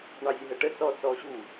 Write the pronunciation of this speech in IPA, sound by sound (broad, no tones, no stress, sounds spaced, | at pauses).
ɳ ɑ zʲ ə ɦ ə ʈ ə t͡s ɔ t͡s ɔ ɕ u